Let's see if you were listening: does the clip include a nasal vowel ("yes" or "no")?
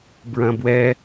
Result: yes